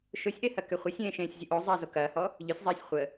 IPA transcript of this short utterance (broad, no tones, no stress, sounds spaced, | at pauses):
ʃ ʊ sʲ ʔ e h ɐ k ʏ χʷ ə sʲ ẽː ʃ ẽː sʲ zʲ ʊ ʔ o zˤ ɐː z o k ɐː h ɔ | ʎ ʏ sʲ zˤ ɐː sʲ χʷ ə